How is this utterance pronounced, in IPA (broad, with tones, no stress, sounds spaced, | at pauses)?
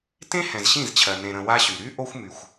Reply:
t ẽ˦ h ɛ̃˨ z ɕ ĩ˦˨ z t͡ɕʰ ɜ˨ n ẽ˨ ɾ ə̃˨ w a˦ ɕ y˨ ɾ y˦ ʔ o˦ xʷ m y˨ xʷ